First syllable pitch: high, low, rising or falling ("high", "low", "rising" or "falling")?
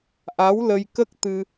rising